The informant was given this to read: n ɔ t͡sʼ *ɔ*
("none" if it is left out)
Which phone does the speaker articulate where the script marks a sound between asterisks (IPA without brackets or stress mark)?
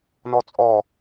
ɔ